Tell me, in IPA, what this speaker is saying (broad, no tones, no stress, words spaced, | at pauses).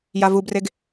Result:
javubreɡ